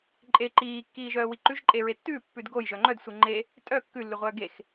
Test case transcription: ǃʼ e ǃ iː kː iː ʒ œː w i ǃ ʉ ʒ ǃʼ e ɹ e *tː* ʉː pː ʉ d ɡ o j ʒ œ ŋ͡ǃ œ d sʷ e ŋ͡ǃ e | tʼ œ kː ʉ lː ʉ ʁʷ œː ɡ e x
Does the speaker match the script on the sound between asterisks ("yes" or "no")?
yes